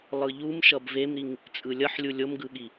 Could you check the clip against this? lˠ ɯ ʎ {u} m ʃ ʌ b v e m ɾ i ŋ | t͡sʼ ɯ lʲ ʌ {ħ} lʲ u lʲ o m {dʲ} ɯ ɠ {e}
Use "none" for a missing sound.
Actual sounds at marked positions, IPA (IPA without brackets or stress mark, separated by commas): u, ħ, ɡ, i